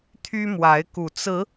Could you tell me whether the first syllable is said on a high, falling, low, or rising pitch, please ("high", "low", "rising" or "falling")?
high